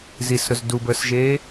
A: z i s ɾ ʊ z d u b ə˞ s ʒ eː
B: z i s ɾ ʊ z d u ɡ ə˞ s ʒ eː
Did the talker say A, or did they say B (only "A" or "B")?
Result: A